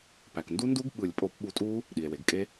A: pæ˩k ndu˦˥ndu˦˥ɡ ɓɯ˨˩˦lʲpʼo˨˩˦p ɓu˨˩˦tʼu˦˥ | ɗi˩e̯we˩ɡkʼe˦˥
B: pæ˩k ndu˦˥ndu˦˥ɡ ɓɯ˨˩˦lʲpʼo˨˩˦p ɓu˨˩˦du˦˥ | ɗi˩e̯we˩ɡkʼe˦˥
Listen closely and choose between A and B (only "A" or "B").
A